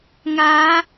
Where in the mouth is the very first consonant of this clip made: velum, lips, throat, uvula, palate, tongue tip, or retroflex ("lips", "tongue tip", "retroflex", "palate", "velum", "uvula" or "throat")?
velum